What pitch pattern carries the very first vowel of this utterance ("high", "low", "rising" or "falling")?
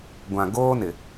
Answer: low